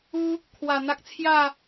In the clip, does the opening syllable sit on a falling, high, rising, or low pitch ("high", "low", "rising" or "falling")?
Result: high